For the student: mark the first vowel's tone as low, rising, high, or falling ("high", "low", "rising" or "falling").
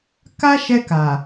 high